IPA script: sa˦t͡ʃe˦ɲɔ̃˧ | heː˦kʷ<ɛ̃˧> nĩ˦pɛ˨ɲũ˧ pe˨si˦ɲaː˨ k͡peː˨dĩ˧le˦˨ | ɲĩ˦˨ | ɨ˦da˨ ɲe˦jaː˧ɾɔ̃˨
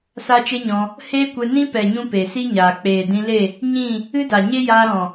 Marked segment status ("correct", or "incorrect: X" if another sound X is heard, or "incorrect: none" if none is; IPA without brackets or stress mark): incorrect: ɛ˧